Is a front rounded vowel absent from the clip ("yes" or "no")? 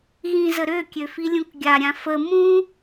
no